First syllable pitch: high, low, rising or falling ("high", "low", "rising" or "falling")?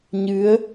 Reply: rising